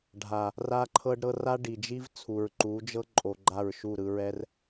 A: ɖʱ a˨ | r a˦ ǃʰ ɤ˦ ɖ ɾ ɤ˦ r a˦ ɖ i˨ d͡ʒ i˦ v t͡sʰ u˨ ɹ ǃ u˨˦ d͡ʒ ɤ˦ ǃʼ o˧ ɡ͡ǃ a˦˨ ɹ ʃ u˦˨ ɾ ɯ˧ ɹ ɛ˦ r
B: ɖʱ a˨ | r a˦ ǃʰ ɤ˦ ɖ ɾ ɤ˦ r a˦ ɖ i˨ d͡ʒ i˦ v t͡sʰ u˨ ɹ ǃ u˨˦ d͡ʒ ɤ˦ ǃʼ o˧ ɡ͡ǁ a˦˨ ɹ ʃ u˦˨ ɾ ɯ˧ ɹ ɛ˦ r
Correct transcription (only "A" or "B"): A